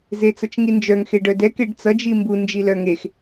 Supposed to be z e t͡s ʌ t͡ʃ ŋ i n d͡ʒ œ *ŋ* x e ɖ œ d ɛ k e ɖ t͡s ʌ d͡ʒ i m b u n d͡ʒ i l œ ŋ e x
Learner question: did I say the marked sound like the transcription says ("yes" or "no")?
yes